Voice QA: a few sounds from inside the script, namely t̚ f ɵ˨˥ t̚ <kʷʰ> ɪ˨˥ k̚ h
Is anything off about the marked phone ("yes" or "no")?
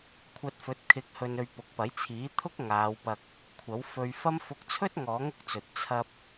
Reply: yes